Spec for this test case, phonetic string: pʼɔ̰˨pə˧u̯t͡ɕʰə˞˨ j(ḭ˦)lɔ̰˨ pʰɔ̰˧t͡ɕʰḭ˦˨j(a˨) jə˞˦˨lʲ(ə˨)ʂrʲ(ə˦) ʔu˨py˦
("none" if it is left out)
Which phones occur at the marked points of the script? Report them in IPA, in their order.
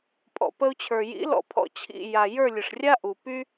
ḭ˨˦, a˨, ə˨, a˦

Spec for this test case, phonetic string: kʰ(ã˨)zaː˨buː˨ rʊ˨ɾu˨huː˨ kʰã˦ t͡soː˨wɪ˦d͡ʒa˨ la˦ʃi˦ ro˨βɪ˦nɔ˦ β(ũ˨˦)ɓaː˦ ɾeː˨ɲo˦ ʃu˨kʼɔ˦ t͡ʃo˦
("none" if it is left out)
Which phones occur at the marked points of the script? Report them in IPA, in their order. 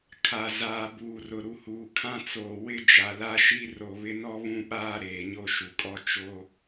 a˨, ũ˦

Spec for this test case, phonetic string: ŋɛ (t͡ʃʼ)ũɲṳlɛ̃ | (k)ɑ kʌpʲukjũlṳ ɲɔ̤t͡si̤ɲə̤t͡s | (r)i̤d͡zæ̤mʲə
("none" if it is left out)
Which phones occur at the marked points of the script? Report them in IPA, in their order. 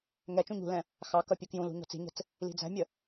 t͡ʃ, x, l

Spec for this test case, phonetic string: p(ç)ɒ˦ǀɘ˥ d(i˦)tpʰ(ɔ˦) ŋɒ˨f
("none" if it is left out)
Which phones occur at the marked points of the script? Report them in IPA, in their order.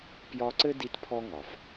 j, i˦, ɔ˦

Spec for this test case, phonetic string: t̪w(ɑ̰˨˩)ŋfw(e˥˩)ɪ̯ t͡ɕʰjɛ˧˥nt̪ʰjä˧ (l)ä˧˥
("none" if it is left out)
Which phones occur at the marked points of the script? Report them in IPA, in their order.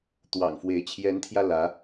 ɑ̰˨˩, e˧˥, l

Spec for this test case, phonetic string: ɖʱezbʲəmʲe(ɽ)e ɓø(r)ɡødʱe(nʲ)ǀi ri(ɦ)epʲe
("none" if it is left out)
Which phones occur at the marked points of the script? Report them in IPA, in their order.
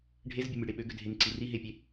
ɽ, none, n, ɦ

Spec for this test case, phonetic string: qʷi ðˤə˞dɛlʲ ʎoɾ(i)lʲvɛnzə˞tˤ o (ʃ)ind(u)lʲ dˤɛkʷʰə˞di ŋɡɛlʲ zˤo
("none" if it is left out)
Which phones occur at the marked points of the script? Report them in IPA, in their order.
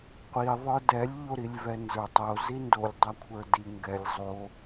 i, z, o

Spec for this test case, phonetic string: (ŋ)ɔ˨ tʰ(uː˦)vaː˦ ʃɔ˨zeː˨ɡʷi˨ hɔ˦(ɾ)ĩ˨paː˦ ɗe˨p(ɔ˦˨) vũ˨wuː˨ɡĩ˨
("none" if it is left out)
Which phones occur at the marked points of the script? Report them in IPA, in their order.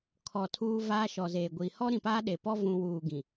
kʰ, uː˦, ɾ, ɔ˦

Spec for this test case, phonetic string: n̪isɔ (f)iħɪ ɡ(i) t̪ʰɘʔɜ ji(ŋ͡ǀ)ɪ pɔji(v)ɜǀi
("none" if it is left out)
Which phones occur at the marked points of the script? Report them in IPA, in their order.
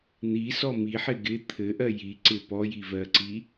m, ɪ, ǀ, v

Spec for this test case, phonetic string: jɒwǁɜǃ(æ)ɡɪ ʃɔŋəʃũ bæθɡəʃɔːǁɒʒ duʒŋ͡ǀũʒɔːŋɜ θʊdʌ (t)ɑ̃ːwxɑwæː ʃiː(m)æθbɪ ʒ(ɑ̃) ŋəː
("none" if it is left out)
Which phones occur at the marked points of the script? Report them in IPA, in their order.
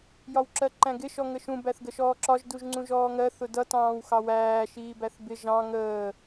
æ̃, t, b, ɑ̃

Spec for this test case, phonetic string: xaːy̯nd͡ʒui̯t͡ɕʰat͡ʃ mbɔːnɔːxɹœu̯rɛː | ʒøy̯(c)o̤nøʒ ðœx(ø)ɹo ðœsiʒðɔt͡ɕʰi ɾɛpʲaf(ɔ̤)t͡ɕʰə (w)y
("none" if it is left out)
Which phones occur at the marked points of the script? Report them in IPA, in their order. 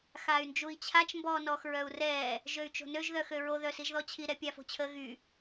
t͡ʃ, ø, o̤, ɣ

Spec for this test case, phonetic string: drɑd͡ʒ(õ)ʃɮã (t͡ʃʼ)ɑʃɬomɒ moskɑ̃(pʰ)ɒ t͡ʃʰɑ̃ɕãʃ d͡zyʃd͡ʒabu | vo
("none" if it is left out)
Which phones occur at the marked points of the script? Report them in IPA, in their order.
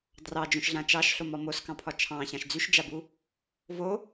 õ, t͡ʃ, pʰ

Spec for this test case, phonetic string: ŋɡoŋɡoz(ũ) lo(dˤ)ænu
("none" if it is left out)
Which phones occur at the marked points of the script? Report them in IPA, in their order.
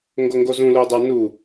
ũ, dˤ

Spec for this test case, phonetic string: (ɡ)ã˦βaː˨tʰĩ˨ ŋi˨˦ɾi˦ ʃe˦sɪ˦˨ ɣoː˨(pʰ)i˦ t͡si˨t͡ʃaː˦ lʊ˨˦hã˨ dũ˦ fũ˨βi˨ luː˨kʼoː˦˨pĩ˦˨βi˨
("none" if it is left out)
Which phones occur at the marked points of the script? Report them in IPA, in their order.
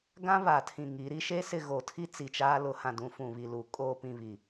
ɡ, tʰ

